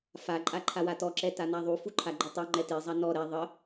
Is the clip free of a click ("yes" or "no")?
no